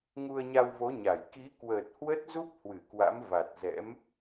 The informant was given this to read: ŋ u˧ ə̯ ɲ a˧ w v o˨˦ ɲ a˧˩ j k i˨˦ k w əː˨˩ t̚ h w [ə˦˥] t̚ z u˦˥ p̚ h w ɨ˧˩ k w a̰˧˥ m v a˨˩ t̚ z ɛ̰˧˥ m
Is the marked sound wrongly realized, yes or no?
no